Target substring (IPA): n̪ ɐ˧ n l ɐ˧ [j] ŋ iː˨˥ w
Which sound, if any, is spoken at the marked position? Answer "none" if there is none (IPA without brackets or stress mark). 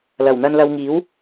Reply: w